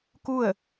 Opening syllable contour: falling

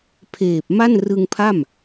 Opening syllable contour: low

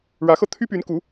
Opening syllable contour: rising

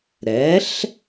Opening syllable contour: rising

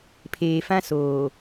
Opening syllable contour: low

